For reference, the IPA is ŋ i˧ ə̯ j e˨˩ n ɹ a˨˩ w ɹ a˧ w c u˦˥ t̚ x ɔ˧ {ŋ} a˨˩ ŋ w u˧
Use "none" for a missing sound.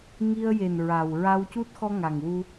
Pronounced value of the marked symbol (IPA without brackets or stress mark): ŋ